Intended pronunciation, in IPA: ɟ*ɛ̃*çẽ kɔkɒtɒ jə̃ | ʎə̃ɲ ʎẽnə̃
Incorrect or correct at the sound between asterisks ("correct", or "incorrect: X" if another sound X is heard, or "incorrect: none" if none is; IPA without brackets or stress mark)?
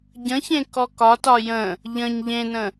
incorrect: ə̃